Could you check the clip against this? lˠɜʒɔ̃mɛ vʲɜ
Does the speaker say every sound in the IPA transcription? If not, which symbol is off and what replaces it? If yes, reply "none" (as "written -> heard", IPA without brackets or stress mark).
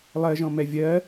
none